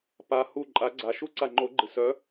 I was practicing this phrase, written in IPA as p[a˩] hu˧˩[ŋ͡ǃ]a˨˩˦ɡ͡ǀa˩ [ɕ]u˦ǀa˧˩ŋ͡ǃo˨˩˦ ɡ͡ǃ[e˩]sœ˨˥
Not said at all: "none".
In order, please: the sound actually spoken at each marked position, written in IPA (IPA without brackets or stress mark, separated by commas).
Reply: a˩, ǃʼ, ʃ, ɨ˩